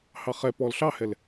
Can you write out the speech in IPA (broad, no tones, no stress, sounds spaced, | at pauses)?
h ɑ χ ɛ p ɔ l ɬ ɑ h ɛ l